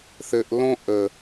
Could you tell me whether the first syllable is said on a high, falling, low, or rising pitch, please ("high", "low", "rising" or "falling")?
low